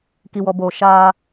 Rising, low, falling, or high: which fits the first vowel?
low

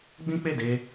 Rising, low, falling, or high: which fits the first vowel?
high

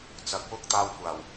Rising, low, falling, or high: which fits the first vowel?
rising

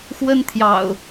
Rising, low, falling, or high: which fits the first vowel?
high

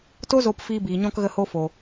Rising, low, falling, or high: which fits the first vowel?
high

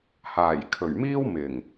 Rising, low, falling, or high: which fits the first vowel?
low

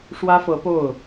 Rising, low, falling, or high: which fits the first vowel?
high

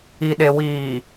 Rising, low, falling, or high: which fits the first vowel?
low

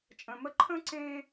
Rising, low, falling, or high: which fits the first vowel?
low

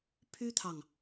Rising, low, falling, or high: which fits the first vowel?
high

